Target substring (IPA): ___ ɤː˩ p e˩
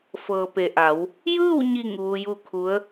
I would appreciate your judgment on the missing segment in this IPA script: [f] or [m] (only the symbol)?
f